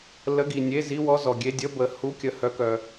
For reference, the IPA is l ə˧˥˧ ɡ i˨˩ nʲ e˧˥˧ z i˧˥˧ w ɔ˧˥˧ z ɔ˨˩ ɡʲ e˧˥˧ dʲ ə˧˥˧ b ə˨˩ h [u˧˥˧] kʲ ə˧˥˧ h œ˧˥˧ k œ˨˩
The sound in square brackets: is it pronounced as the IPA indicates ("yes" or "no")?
yes